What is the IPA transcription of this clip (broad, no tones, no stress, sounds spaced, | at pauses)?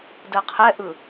d ɜ qʰ ɛ ʔ ɯ